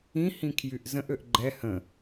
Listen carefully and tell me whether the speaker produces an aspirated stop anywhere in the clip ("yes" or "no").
yes